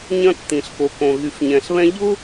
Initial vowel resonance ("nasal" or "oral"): nasal